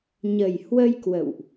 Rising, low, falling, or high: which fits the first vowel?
low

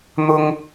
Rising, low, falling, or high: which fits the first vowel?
high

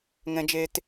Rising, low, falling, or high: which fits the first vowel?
high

